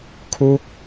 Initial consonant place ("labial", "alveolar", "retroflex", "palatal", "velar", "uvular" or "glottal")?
velar